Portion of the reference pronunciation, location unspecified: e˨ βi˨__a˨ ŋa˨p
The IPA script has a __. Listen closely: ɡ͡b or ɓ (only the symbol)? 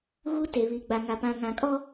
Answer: ɡ͡b